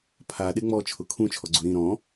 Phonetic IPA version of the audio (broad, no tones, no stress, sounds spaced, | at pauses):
pʰ a ɗ e ŋ͡m ɔ t͡ʃʰ ʊ kʰ ũ t͡ʃʰ ɔ ɡ͡ǀ u ɾ ĩ ɾ ɔ̃